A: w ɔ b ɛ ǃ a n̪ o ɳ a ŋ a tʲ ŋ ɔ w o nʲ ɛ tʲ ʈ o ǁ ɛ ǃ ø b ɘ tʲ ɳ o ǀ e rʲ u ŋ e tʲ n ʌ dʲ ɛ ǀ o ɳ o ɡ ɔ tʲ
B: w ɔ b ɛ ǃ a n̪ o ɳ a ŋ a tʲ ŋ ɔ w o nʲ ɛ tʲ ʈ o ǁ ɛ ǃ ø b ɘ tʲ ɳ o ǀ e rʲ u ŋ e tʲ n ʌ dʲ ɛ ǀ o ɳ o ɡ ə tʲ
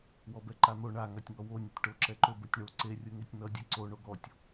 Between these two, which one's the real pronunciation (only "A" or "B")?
A